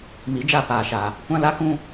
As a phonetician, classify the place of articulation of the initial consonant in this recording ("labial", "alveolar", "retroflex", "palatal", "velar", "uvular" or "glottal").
labial